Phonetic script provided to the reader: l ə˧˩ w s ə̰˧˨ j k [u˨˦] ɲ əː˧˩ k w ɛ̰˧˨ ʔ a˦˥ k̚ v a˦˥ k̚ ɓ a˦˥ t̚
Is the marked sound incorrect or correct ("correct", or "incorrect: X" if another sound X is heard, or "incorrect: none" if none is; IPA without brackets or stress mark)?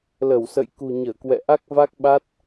incorrect: ṳ˨˩